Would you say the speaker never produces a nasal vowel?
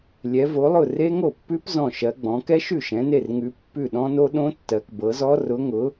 no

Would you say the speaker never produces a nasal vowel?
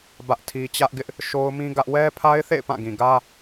no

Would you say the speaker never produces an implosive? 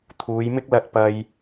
yes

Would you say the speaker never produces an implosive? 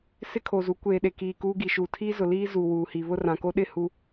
no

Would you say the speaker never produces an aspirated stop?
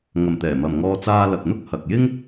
yes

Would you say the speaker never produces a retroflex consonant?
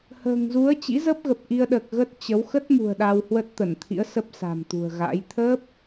yes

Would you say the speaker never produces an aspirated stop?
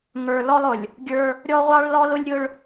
yes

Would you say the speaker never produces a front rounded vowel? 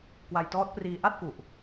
yes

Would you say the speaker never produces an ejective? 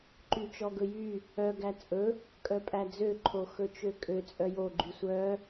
no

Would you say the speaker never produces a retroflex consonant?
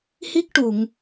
no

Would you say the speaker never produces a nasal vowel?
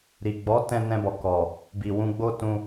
no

